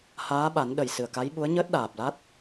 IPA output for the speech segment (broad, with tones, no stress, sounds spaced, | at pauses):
h aː˧˥ ɓ a˨˩˦ n ɗ ə˨˩ j s ɨ˨˩ ə̯ k a˧˥ j ɓ u˧˥ ə̯ ɲ əː˦˥ t̚ ɗ aː˨˩ p̚ l a˦˥ t̚